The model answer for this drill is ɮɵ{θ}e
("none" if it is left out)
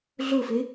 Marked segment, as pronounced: f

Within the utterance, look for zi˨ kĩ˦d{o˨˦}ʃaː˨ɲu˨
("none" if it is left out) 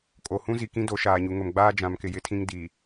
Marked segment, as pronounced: o˨˦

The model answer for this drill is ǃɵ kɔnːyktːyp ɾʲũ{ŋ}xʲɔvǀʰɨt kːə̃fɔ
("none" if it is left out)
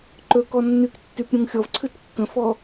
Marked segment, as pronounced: ŋ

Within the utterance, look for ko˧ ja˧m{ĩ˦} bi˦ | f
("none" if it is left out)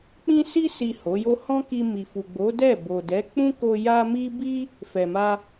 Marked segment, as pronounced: i˦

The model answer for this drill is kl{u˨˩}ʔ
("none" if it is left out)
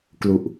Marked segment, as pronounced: u˨˩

